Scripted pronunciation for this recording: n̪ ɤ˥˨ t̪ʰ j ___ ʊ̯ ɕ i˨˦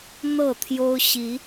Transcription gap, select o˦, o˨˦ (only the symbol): o˦